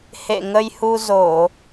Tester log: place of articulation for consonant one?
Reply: glottal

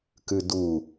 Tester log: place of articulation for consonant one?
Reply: velar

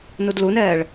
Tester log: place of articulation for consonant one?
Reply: alveolar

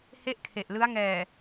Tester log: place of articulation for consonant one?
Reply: glottal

